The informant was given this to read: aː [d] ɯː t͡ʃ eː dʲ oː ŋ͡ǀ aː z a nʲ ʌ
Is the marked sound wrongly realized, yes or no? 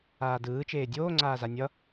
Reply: no